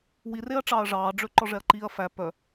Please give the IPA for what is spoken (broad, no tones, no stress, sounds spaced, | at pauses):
w i r e ɐ̯ ʈ͡ʂ ɑː ɐ̯ ʐ ɑː ɖ͡ʐ ø ǃ ɔ ʐ ɛ ɐ̯ ǃ iː ɐ̯ f æ p œ